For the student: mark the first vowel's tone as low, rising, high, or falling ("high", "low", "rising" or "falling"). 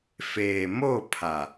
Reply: low